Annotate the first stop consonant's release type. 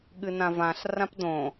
implosive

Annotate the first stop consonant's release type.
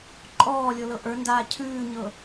click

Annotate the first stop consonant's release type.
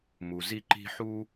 click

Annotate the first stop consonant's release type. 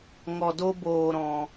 plain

